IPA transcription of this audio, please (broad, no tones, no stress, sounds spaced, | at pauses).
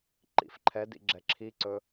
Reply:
ǃ ḭ f ǃʰ ɛ d ḭ ɡ͡ǁ ɛ ǁʰ i ǀ ɵ